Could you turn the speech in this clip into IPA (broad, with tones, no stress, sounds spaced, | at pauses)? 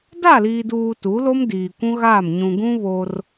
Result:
d a˦˨ l iː˨ d uː˨ t u˨˦ l o˦ m d iː˨ kʷ ũ˦ ɣ aː˦˨ m ɲ ũ˨ ɡ ũ˦ β o˦ r